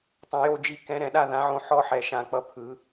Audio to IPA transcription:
tˤ õ˨˩ j o˦˨ d͡ʒ i˨˦ k ɛ̃˨˦ ɾ ɛ̃˧˩˧ ɗ a˦˨ ð ã˨˦ ʕ õ˦˨ ħ ɔ˦˨ ħ ɛ˨˩ ʃ ã˧˩˧ k͡p ʌ˨˦ pʰ ɯ˨˦

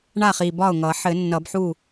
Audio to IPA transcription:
ɳ a˥˩ χ i˨˩ b ɒ˥˩ ʊ̯ ŋ ʌ˨˩˦ ħ ɘ˨˩˦ nː ʌ˨˩˦ b ħ u˥˩

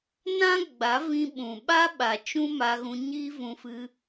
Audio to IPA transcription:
n ã˦ ɡ͡b a˨˦ v ĩ˧ ɓ ũ˨ ɓ a˦ ɓ a˨ t͡ʃ ũ˦ m a˧ ɣ ũ˧ ɲ i˦ v ũ˧ f ɨ˧

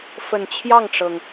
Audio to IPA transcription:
f ə˨˩ n t͡ɕʰ j ɑ˥˩ ŋ ʈ͡ʂ ɤ˩ ŋ

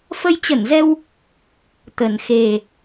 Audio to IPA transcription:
f ə˧ j t͡ɕ ə˧˩ n z ɛ˧ w | t̪ ə˨˩ n x e˨˩

